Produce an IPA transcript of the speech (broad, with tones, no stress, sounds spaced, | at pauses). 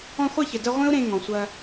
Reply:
ɔ̃˧ χʷ ɐ˦˨ ç ɘ˨ d ə˧ ʁʷ ẽ˦ u̯ ɾ ẽ˧ ŋ ɔ̃˨ sʷ ɐ˧